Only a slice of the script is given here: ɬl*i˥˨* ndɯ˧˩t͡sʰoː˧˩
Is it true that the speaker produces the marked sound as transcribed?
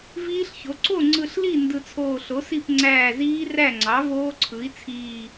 yes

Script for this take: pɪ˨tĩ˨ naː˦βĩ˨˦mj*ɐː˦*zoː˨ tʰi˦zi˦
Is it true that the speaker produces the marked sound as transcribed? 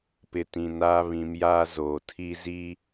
no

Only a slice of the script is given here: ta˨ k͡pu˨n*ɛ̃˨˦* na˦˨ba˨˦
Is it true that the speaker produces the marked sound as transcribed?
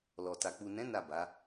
yes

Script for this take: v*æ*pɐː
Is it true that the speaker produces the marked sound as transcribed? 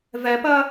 no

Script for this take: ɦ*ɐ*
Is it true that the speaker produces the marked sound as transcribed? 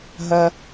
yes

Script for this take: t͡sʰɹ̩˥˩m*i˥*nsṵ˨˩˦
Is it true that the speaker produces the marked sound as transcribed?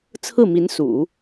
no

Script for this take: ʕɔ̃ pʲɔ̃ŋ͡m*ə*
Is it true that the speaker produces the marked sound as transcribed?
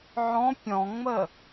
yes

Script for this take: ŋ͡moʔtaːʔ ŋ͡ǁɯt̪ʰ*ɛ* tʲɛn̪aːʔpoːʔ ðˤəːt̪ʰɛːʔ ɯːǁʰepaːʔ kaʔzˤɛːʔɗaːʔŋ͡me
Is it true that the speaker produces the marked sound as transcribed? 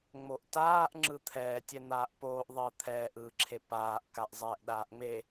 no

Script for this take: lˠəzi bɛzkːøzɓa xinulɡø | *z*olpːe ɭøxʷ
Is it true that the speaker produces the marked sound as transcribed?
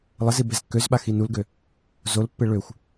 yes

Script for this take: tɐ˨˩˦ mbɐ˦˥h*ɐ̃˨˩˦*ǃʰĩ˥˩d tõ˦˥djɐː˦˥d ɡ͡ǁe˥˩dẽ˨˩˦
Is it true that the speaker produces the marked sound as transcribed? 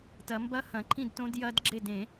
yes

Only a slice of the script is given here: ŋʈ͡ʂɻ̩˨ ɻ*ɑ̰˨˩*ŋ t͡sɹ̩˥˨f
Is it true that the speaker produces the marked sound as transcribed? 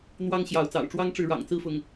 yes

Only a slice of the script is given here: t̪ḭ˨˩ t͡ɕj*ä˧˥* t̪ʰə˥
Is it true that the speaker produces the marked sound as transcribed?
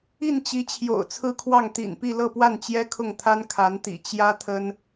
no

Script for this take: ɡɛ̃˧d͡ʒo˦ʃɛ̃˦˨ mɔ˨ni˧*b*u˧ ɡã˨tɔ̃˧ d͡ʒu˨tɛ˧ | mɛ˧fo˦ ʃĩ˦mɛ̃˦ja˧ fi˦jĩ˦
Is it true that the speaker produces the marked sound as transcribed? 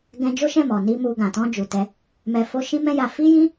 no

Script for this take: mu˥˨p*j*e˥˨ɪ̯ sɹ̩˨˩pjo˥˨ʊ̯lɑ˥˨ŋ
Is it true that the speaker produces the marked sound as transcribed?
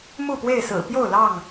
no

